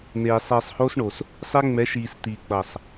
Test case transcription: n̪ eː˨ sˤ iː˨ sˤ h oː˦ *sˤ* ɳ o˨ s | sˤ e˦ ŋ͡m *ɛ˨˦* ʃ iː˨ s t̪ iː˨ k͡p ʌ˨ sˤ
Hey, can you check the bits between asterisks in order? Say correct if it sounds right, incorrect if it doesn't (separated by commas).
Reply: incorrect, correct